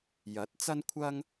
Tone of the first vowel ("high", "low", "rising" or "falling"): rising